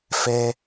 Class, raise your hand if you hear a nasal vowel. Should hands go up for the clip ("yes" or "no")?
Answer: no